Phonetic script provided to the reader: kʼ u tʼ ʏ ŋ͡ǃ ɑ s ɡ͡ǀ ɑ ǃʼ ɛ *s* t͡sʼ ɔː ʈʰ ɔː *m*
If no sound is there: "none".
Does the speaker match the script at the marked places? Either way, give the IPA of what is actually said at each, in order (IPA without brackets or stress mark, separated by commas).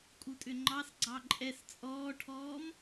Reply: s, m